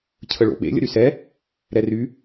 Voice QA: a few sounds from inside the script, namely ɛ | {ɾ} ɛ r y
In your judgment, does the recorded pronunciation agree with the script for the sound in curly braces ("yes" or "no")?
yes